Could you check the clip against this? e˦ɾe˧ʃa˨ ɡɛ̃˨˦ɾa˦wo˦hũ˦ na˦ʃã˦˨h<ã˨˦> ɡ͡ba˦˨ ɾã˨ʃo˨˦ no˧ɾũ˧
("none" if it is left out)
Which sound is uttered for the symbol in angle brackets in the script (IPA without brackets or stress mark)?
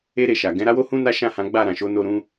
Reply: ã˨˦